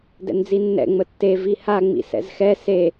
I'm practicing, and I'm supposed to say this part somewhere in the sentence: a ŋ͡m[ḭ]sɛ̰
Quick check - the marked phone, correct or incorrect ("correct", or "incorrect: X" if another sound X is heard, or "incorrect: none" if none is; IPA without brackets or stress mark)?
correct